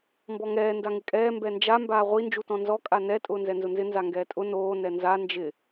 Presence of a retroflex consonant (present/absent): absent